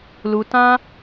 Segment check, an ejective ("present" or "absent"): absent